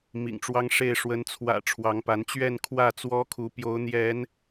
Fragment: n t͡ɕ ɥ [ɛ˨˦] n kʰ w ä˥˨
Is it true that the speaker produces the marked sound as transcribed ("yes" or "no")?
no